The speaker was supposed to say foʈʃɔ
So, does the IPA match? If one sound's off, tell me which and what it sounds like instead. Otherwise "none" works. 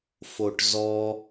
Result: ʃ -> z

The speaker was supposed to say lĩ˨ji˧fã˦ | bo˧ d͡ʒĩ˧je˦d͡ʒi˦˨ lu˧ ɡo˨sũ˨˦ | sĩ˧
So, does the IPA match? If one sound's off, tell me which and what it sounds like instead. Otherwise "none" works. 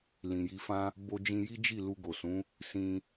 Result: e˦ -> i˦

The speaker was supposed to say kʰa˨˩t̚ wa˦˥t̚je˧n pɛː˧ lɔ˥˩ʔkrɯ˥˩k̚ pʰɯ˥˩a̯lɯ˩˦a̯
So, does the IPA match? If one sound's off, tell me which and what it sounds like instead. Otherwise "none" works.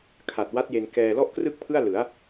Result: p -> k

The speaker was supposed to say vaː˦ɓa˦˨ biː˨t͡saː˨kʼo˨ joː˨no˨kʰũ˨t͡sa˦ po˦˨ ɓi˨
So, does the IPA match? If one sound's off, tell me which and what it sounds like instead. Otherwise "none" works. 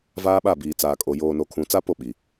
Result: none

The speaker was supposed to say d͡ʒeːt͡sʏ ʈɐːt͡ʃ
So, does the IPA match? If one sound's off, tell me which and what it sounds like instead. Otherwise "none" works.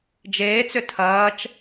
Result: ʈ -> tʰ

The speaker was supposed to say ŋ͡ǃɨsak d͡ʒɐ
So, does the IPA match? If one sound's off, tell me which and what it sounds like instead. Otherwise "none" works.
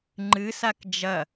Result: none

